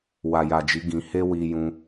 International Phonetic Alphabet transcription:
wa˨ja˨d͡ʒi˨˦ ɡĩ˧ he˦wi˧jũ˧

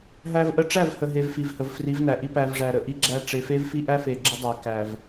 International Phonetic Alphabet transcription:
ɦæ˦vʔə˦ ʈ͡ʂæ˦˨vhə˨ɦe˨v fi˨vhə˨v fri˨˦vnæ˨ʔi˦ pæ˨vʐæ˨ ɾə˨ʔi˦ɡ͡ǁæ˦ ʈ͡ʂe˨fe˦vfi˦ ʔæ˦fe˨ɡ͡ǁə˦ dˤæ˨ kæ˨v

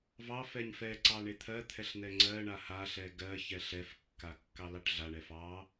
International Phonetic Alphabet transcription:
vɑfɛɲ fɛ ǀɑɳet̪ʰɜt̪ʰɛɬ n̪ɛŋ͡ǀɜɳa haɬɛ ɡɜçɛɬ ɛfkːa kːɑlɑʈɮaɳɛ fɑ

